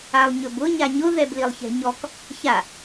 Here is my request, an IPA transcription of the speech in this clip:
alˠɲɵbʊ ɲaɲʊ ðɛblilˠçɛ̤ɲɔk | ça

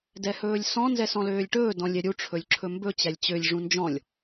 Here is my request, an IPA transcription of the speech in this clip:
dɛhɵːlʲsɔ̃ nzɛsɔ̃løːlʲʈɵː dɔ̃lʲɛɾʲu ʈ͡ʂʰɵlʲǁʰɵmbɵ t͡ɕælʲt͡ɕølʲ ʐũnd͡ʒɔ̃lʲ

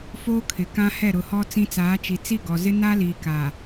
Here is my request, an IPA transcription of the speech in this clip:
foː˦kʰɪ˨ kã˦hɛ˦˨ɾʊ˨hɔ˦ t͡sĩ˦t͡saː˨˦t͡ʃi˨ t͡si˦˨ɡɔ˨zɪ˦ na˦liː˨ka˨

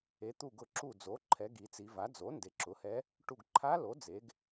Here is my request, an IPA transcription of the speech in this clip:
e˩˧t̪u˧˩ɡʊ˧˩ ǁu˧˩d͡zo˩˥ǃʰɛ˩˧ ɡi˩˧t͡si˩˧va˩˥ d͡zo˩˥ nde˩˧ǁʊ˩˥hɛ˧˥ | ʈu˧˩ɡǃʰa˧˥lo˩˥ d͡ze˩˧ɡ

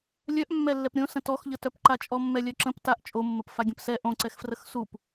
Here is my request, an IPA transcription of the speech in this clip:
lʲœʔmːɛlːɛp ɾʲõsə̃ tɔxʎətœpǃa t͡ʃʼɔmːɛlʲœǁə̃p taʔ t͡ʃʼomːəp faɡʲə̃psɛ ʔõǀɛxfrəx sup

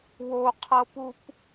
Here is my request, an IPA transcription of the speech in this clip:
woqʰɤpup

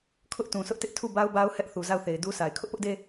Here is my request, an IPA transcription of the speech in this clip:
kʰʊ˦ʔtũ˨sʊ˦ʔtɪ˦ʔ tʰu˦˨ba˦ʊ̯ ba˦ʊ̯hɛ˦ʔ θu˨za˦˨ʊ̯θe˨ɪ̯du˦ sʰa˨ɪ̯ kʰʊ˦ʔpʊ˦ʔde˦

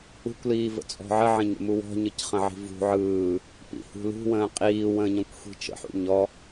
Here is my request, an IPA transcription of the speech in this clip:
ṳkʷliːvə̰t͡sʼɔ̤ ʕəʕə̃ɲə̰mu wɔ̤ɲɯcχə̃ʕi̤ vṳ ʕɯː | pḭhṳ lṳwə̃ː qʼiːwə̃ː ɲɔ̃kʷxʷi̤t͡ʃə̰ħṵ ɲɔ

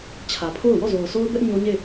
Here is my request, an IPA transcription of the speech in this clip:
t͡ɕʰä˨pʰo˦˨ʊ̯ wɔ˦˨zo˨ʊ̯ sʰo˦ʊ̯bɛ˦ʔ ɲo˦ɲe˦˨

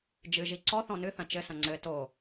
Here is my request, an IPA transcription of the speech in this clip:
d͡ʒɨʒi ǀɔ θɔ̃nɨθɐ̃ t͡ʃɘsɐ̃ ŋ͡ǀɘ to

